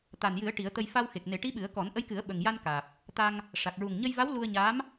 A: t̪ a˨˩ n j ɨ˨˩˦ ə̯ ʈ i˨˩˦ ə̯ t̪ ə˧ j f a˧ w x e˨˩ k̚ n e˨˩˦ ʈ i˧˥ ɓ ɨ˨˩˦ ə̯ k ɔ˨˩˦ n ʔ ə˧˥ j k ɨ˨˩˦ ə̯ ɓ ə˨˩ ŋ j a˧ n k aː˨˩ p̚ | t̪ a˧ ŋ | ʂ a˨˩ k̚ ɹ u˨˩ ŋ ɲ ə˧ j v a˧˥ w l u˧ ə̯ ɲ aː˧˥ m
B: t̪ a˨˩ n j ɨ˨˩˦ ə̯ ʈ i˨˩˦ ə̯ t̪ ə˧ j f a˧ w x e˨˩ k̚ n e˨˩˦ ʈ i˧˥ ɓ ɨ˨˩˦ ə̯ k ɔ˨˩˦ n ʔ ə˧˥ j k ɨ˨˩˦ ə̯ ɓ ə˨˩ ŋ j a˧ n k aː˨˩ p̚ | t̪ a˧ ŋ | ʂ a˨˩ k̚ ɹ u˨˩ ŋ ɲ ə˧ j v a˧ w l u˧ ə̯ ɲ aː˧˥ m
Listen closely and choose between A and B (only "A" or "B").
A